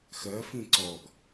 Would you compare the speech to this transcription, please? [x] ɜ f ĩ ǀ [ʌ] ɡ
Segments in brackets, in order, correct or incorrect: correct, incorrect

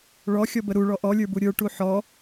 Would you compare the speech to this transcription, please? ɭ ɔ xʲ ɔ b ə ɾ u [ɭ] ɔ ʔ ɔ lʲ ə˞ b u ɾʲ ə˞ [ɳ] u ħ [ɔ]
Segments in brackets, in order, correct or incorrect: correct, incorrect, correct

